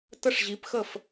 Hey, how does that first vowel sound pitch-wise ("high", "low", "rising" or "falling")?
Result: falling